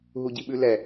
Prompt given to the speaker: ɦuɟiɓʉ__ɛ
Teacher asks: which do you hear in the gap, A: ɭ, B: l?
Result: B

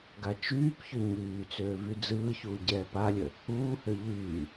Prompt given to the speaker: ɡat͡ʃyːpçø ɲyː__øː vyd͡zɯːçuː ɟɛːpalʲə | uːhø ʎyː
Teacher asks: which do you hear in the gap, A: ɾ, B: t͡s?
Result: B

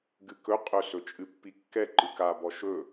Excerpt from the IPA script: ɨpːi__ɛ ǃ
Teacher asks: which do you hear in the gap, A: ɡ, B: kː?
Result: B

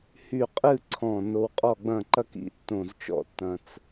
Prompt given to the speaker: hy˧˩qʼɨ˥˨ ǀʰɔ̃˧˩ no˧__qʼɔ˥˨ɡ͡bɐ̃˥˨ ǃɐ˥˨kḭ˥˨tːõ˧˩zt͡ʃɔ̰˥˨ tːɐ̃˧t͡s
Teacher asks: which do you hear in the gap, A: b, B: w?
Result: B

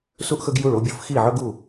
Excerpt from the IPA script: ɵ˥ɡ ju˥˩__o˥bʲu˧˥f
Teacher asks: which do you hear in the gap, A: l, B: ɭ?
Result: B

